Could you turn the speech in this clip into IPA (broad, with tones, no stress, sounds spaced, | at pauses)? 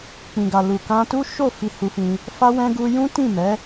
k͡p ĩ˨ ɡ a˨ l u˨ k ã˧ t u˦ ʃ o˦˨ f i˧ h u˧ f ĩ˧ | f a˦ w ɛ̃˦ ɡ u˧ j ũ˦ t ĩ˦˨ m ɛ˨˦